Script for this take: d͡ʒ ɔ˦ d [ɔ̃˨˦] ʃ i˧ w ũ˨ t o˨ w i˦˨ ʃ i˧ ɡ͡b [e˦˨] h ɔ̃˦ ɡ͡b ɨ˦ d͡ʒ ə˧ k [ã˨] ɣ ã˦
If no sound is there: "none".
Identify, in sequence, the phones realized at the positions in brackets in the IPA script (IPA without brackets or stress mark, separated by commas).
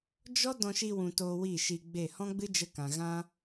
ɔ̃˧, e˦˨, ã˨